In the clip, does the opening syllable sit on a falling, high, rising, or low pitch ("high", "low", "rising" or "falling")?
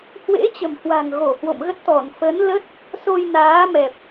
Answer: rising